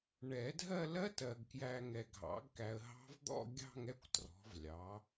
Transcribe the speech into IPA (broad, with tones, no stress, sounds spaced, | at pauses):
ɳ ɛ˨˩˦ dʱ ɜ˥˧ l ɜ˦˥ t ɜ˨ ɡ k j æ˨ ŋ ɛ˨ ɡʱ ɑ̰˩˥ ɡ k æ˨ ə̯ ɦ ɑ̤˦˥ v d̪ ɔ̰˥˧ ɡʲ ɑ̤˥˧ ŋ ɛ˥˧ kʷ t r ɔ̤˩˥ v lʲ ɑ˩˥